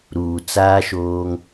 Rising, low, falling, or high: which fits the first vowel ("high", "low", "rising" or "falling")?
low